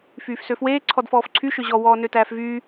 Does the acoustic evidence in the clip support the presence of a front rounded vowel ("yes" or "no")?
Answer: yes